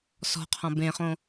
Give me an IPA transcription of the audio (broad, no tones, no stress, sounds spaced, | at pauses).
s ɔ̤ qʰ ɔ̃ b ẽ χ õ